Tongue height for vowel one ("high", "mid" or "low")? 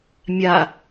low